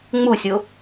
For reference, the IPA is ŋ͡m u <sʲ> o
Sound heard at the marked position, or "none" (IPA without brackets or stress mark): sʲ